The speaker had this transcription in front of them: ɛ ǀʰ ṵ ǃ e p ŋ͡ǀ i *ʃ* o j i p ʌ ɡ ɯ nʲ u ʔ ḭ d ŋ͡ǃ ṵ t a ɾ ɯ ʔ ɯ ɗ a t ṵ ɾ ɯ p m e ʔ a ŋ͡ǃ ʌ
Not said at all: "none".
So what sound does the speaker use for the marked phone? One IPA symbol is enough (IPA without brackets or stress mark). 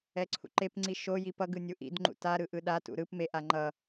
ʃ